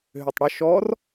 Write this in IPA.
ɦ ʏ tˤ ɽ ə ʃ ɔ r

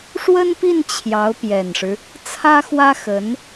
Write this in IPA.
ʂ w ə˥ n p i˥˩ n t͡ɕʰ j ɑ˧˥ ʊ̯ p j ɛ˨˩ n ʂ ɻ̩˦ | t͡sʰ ä˥ x w ä˥ x ə˧˥ n

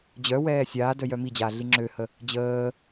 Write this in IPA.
d͡ʑ œ w ɛː sʲ aː d œ j œ m i d͡ʑ aː ɮ i ŋ͡ǁ ø h ə | d͡ʑ əː

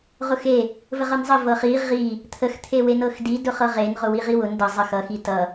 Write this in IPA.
ʁ ʊ x e | v ə ʁ ɤ n zˤ ə v ɤ χ i ʁ i | t̪ʰ ə x t̪ʰ e w e n ɤ x d i d ʊ χ ɤ ʁ e n ʁ ʊ w i ʁ i w ʊ n d ʌ zˤ ə x ʌ x i t ʌ

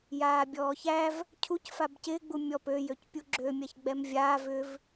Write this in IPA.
j aː bʲ ɔː ç æ v | cʰ u c f a b c ɪː ɡ͡b u mʲ ɔ p ø j ø c pʲ u ɡ͡ǁ ø mʲ a ç ɡ͡b ɛ m vʲ aː v ʏ v

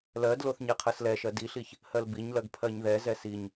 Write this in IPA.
l ɜ d l o θ ɲ ɛ qʰ ɜ s l ɛ ʃ ɜ d i ɬ i ç | h ɜ l b i ɲ l ɜ ɡ pʰ ɜ ɲ ð ɛ z ɛ s i ɲ

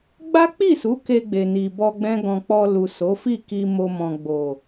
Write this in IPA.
ɡ͡b a˦ k͡p i˦˨ s u˨˦ k e˧ ɡ͡b e˨ n i˨ b ɔ˧ ɡ͡b ɛ̃˦ ɡ ɔ̃˧ k͡p ɔ˧ l u˨ s o˨˦ f i˦˨ k i˧ m o˧ m ɔ̃˨ ɡ͡b o˨

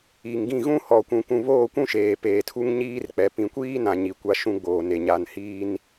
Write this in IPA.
i˨ ŋ ɡ ĩ˦˨ ɣ ũ˦ h ɔ˨ kʷ ũ˨ k ũ˨ β oː˦˨ kʷ ũ˦ ʃ eː˨ p eː˨ tʰ u˦ ŋ ɲ iː˦ r k͡p ɛ˨ p ĩ˨ kʷ iː˦ n ã˨ ɲ i˨ kʷ a˦ ʃ ũ˦ ɡ͡b oː˨ n e˨ ɲ a˨ n h iː˦ n

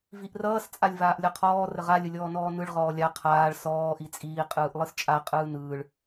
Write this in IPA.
v i ʔ r ʌː s t͡sʼ a lʲ v aː ʔ lʲ ɒ qʰ ɔː r ə ʁ a lʲ ə lʲ ɔː n ɔː n ɯ ɭ ʁ ɔː lʲ a qʰ aː ɭ s ɔː ʔ i t͡sʼ iː qʼ ɯː ʔ lˠ ɯ s t͡ʃʼ a qʼ ɯː n ɯː ɭ

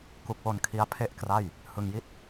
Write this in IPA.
k u˦˥ k̚ w o˧ n kʰ i˦˥ a̯ pʰ e˥˩ ʔ k r a˥˩ j | h ɯ˧ ŋ j i˥˩ t̚

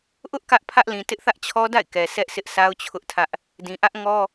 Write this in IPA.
ʔ ʊ˦ ʔ k ä˦ ʔ pʰ ä˦ ʔ l ĩ˨ t ɪ˦ ʔ θ ä˦ ʔ t͡ɕʰ ɔ˦ d a̰˦˨ ɪ̯ k ɛ˨ s ɛ˦ ʔ s ɪ˦ ʔ s a˦ ʊ̯ t͡ɕʰ ʊ˦ ʔ tʰ ä˦ ʔ | d ĩ˨ ʔ ä˦ ʔ ŋ ɔ˦

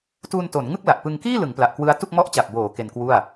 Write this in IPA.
t uː˧ n t o˩˦ n ŋ ɯ˥˩ k̚ l a˨˩ ʔ p ɯ˧ ŋ k iː˥˩ l ɯ˩˦ ŋ p l a˨˩ ʔ k w ɯ˦˥ a̯ t u˥˩ k̚ m ɔ˦˥ ʔ t͡ɕ a˨˩ p̚ b oː˩˦ k e˧ n k w u˥˩ a̯

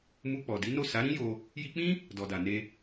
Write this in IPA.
m u˧ k͡p ɔ˨ d i˨˦ n o˦˨ s a˨˦ ɾ ĩ˦ j o˧ | j i˧ k͡p ĩ˦ | d ɔ˨ d a˨ n e˧

